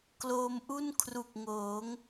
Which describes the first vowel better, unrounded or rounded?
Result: rounded